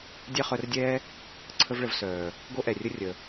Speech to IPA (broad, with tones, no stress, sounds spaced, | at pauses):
dʲ ɛ˦ χ œ˧ r dʲ ɛː˦ | ǀʰ ə˦ v ɭ ə˧ v s œː˨ | ɡ o˦ ʔ ɛ˨ rʲ ə˦ rʲ ə˨